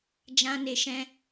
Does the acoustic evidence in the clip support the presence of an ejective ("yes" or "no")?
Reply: no